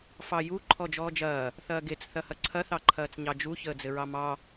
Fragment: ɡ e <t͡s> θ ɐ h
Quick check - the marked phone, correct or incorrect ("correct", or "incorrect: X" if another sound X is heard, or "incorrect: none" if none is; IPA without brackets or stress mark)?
correct